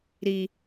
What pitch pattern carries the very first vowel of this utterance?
low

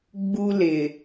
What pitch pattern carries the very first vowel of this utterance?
high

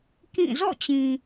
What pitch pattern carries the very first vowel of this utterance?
falling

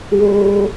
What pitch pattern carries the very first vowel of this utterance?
high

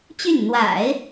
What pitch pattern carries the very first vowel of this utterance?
falling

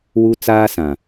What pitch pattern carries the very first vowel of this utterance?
high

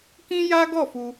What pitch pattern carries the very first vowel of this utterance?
high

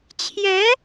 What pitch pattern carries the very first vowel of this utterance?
rising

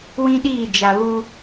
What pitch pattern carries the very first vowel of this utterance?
high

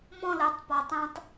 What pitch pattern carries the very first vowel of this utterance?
falling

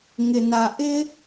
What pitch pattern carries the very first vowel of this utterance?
low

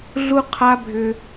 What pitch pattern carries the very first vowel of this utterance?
high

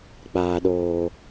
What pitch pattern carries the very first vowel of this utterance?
low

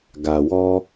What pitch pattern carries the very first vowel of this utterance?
low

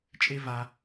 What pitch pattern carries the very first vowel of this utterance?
high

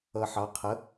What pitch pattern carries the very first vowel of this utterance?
low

